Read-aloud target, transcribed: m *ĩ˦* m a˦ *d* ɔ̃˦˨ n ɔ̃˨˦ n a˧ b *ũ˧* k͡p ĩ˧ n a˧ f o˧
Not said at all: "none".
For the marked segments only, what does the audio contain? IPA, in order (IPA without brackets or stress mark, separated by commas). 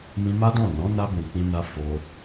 ĩ˧, d, ũ˨